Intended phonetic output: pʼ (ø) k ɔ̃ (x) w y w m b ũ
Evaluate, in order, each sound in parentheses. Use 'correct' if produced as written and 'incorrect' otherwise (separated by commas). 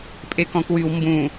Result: incorrect, incorrect